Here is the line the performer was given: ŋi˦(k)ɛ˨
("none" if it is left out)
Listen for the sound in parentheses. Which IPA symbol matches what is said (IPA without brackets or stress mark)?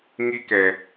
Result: k